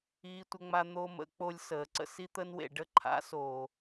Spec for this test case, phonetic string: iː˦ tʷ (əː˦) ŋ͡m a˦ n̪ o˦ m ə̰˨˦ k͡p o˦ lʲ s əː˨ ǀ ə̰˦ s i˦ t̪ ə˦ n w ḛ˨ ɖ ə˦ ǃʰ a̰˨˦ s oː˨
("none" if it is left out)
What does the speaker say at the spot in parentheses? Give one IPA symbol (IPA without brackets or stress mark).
ə˦